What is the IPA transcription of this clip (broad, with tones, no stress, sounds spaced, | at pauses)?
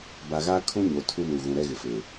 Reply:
b a˨ ɣ aː˦ kʰ ũ˦ ɲ o˨ tʰ u˦ n u˨ ɣ ũ˨ ɾ ɛ˦ ɣ ɪ˨ f e˨